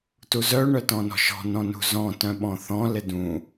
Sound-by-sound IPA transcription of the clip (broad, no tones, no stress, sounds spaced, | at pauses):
t u z œ ɳ œ t ɔ̃ n ɔ̤ ʃ ɔ̤ n ɔ̃ n ṳ z ɔ̃ t œ̃ ɓ ɔ̃ θ ɔ̃ l ɪ d ũ